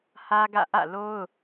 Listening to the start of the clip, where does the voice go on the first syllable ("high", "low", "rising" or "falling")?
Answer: high